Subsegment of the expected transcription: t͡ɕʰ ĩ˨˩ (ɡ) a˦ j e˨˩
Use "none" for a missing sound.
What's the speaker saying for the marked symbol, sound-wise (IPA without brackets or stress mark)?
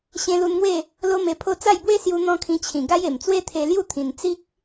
ɡ